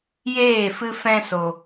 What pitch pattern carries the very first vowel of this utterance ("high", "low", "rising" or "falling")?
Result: falling